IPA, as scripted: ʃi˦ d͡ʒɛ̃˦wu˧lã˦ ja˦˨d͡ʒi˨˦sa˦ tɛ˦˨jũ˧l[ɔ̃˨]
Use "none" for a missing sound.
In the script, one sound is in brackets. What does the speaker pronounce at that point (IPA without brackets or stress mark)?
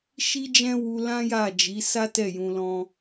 ɔ̃˦